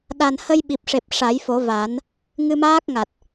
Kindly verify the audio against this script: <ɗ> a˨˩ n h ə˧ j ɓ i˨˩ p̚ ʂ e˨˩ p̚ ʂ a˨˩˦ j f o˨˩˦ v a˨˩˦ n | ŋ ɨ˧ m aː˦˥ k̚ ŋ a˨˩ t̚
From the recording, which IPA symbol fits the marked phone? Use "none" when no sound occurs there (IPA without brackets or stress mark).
ɗ